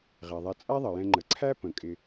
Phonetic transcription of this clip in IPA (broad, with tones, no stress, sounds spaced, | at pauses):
ʁ ɛ˩ ðˤ ɛ˨ t͡sʼ æ˦ ðˤ ə˩ j ɛ̃˨ ŋ͡ǃ ə˩ ǀʰ æ˥ p ə̃˩ kʼ ɪ˨